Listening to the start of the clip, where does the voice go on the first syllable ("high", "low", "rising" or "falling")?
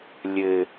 low